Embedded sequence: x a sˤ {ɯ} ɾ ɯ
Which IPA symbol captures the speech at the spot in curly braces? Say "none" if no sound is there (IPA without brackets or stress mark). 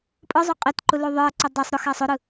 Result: ʊ